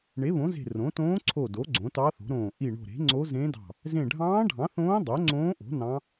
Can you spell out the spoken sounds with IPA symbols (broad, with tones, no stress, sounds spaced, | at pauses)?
ɳ e˩˥ β õ˩˥ z e̤˧˩ r õ˩˥ t õː˧˥ ǀʰ o˧˩ d o˩˥ ɡ͡ǀ õ˩˥ t ɑ˧˥ θ o̤˩˥ ɾ õː˧˩ ʔ i˧˩ ɳ o̤˧˩ ɾ e̤˩˥ ŋ͡ǀ o˧˥ z ẽ˧˥ d ɑ̤˧˩ | z ẽ˧˩ ɖʱ ɑ̃ː˧˥ ɖʱ ɑ̃˩˥ θ õː˧˥ dˤ o˩˥ ŋ͡ǀ õː˧˥ ʔ o̤˩˥ n ɑ̃˧˥